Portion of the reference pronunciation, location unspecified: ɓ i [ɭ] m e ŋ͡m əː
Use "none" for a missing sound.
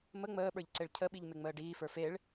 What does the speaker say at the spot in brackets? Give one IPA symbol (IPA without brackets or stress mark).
ʎ